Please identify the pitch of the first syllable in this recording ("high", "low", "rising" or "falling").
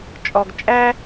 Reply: low